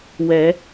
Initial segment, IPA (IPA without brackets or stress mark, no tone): w